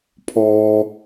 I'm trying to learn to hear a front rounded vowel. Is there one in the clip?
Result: no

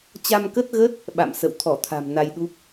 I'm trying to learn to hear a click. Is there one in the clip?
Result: no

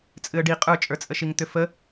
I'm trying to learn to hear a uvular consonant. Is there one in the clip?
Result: yes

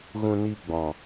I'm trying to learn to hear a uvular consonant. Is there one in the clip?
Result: no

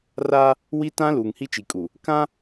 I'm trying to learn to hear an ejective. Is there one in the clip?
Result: yes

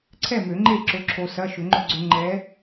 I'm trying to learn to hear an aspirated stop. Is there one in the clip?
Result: yes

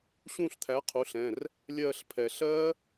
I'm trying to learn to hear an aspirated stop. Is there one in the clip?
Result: yes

